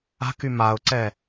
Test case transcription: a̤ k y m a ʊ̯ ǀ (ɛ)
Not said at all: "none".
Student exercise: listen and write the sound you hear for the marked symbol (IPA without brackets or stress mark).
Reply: ɛ